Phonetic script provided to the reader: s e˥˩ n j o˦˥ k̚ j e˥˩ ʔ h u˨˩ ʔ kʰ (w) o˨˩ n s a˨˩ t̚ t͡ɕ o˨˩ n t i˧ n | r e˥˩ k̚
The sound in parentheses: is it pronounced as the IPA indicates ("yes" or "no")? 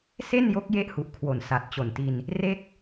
yes